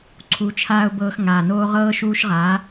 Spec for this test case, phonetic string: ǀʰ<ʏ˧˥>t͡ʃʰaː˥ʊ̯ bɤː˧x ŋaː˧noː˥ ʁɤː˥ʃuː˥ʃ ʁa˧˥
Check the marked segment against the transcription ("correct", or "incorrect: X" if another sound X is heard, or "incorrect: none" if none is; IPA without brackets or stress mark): incorrect: u˧˥